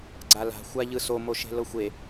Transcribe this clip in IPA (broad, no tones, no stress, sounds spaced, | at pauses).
ɡ͡ǀ a l a̤ xʷ a ʎ ɯ s o m o ʃ e̤ l ɤ xʷ e